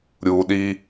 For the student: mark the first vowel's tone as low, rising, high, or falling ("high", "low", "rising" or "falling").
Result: low